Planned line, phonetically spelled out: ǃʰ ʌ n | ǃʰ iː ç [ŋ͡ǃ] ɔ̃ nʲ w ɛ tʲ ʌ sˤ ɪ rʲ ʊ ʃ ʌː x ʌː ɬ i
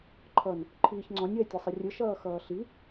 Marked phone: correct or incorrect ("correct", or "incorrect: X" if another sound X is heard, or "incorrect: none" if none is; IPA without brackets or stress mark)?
incorrect: ŋ͡ǀ